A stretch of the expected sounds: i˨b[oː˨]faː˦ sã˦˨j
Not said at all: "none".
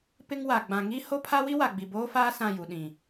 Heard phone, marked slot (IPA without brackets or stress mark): oː˦